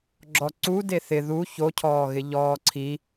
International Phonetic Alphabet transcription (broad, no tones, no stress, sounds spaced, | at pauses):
ɡ͡ǁ ɔ ǀ u d e θ ɪ ð u ç o cʰ ɔː ɣ ɪ ʎ ɔː ǀʰ i